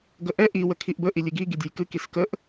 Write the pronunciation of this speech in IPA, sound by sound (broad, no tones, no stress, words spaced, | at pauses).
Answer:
ɡəʔɛ ʔi wəkʰiʔbə ʔilʲɨɡi ɡidʲɛjkɨ kiskəʔ